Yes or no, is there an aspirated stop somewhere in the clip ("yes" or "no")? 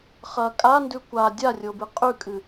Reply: no